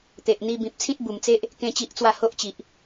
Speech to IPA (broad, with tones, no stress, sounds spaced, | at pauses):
t̪ e˨ ʔ n̪ i˧ b ĩ˨ p̚ t͡sʰ ĩ˦ t̚ b u˨˩ m t͡s e˦ ʔ | k ẽ˦ t͡ɕ i˦ ʔ t͡s w a˥˧ h o˦ ʔ t͡ɕ i˨ ʔ